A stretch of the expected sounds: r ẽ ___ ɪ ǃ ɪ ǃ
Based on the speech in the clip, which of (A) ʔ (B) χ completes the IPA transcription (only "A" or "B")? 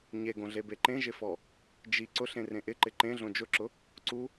A